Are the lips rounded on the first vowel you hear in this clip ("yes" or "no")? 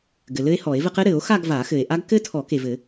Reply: no